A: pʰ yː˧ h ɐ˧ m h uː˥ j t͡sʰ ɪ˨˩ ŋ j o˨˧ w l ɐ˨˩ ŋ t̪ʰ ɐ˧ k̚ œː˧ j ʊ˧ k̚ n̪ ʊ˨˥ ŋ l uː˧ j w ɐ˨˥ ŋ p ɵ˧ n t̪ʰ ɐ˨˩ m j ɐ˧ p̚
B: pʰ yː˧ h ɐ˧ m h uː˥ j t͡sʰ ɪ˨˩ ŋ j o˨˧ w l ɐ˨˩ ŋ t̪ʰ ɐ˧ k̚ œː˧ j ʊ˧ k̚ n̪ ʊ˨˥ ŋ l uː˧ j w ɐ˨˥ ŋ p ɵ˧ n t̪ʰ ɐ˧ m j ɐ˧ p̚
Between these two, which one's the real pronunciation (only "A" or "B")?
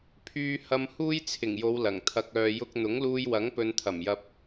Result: A